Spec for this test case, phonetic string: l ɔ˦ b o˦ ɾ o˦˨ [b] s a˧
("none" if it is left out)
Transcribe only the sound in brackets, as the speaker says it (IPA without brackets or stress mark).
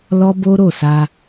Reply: none